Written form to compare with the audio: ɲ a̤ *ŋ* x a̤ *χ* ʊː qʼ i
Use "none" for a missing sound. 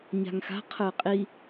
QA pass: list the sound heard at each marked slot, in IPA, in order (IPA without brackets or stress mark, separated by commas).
ŋ, qʰ